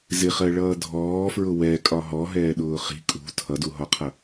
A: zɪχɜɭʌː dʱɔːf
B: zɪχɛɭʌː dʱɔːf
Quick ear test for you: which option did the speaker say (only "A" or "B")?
A